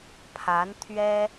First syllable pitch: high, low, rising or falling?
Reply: rising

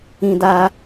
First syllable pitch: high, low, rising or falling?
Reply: high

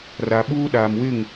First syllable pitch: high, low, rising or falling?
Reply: low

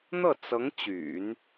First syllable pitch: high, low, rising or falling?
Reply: falling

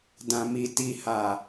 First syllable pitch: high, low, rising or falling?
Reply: low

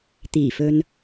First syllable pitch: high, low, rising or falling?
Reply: low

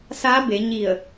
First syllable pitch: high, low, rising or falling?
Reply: rising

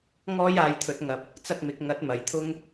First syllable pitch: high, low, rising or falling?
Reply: high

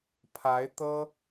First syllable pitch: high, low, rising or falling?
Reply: rising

